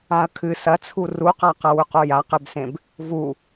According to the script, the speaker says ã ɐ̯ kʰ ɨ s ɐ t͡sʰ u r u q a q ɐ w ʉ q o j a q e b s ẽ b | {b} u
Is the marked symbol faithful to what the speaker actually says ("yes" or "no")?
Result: no